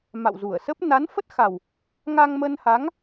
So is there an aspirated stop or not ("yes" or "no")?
no